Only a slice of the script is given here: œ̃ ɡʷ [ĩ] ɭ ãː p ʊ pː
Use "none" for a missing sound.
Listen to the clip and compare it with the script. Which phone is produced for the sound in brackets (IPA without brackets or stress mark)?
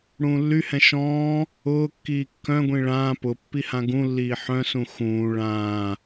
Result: ĩ